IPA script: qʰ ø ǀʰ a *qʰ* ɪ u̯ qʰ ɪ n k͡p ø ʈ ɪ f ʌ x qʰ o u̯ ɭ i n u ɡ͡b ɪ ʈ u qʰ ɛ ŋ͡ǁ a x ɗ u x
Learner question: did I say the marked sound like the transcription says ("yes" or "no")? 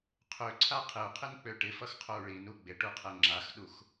yes